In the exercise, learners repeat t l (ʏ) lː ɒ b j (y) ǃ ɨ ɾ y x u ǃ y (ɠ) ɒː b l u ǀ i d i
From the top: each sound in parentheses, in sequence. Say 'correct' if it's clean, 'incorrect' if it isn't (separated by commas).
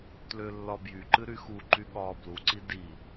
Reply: correct, correct, correct